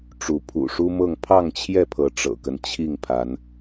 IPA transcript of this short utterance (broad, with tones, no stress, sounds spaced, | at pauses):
ʈ͡ʂ u˨˦ pʰ ṵ˨˩ ʂ u˦ m ɤ˥˨ ŋ pʰ ɑ˥˨ ŋ t͡ɕʰ j ɛ˥˨ pʰ ɤ˨˦ ʈ͡ʂ ɤ̰˨˩ k ə˦ n t͡ɕʰ i˥˨ ŋ pʰ a˨˦ n